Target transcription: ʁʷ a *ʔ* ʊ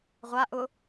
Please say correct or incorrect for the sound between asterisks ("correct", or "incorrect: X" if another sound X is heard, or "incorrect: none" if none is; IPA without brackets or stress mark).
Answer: correct